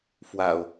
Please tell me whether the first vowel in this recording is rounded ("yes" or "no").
no